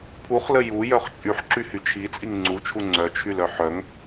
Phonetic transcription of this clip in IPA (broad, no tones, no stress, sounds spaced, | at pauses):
pʰ u χ l ə j u j œ χ t͡ʃʼ y ħ ǁ y h y t͡ʃʰ i t͡sʼ i ŋ ŋ͡ǀ u t͡ʃʰ u ŋ͡ǀ œ t͡ʃʰ y l œ ħ œ ŋ